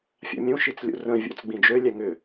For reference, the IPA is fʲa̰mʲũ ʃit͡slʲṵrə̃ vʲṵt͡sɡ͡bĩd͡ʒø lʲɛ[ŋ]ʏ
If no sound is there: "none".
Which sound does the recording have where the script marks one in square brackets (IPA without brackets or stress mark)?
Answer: ŋ